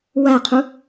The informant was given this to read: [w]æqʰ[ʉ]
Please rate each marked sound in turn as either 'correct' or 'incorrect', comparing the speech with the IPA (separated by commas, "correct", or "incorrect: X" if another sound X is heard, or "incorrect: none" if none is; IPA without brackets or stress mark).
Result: correct, incorrect: u